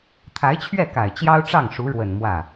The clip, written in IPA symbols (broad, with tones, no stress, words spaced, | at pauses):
t̪ʰa˧˥ɪ̯t͡ɕʰɥɛ˥˩ka˨˩ɪ̯ t͡ɕjɑ˥ʊ̯ʈ͡ʂɑ˥˩ŋʂu˧˥ɻwə˨˩n mwä˥˩